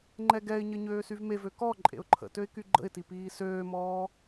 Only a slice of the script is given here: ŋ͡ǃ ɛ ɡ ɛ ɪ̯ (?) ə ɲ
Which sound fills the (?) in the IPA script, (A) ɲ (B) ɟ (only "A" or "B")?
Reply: A